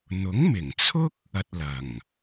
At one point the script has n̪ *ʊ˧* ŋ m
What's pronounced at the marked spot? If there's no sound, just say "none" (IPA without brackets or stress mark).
ʊ˨˥